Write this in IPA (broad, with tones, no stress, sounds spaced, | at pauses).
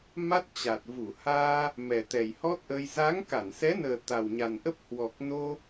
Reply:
m a˦˥ t̚ t͡ɕ a˨˩ t̚ v u˧˩ h aː˧ | m ɛ˨˩ t̪ ɛ˨˩ j h ɔ˦˥ t̚ ʔ əː˧ j z a˨˦ ŋ k a˧˩ n s ɛ˨˦ n əː˨˩ t̪ a˨˩ w ɲ a˨˩ n ʔ ə˦˥ p̚ h w ɔ˨˩ k̚ n o˧